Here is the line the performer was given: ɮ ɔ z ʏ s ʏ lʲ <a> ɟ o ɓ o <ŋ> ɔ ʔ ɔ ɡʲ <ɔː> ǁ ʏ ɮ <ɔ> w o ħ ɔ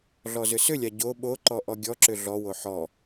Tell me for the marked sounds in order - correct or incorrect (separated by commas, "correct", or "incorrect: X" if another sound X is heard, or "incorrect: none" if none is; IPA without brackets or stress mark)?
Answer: correct, incorrect: ǃ, incorrect: ɔ, correct